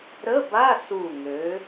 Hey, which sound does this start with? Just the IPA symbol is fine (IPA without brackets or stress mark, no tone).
ɾ